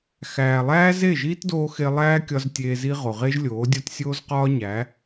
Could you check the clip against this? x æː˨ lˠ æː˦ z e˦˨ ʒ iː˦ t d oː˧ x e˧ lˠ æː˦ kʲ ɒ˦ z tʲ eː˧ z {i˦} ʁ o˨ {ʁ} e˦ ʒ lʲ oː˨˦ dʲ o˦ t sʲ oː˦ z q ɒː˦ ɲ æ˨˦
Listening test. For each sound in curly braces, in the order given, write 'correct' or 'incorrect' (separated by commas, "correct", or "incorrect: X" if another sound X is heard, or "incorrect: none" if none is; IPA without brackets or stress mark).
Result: correct, correct